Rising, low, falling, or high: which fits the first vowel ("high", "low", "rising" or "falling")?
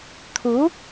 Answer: rising